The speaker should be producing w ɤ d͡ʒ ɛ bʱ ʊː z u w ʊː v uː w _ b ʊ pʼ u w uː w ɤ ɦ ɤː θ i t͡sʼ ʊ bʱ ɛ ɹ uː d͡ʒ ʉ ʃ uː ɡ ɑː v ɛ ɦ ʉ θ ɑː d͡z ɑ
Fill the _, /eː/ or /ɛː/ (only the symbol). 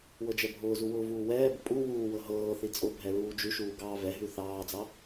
ɛː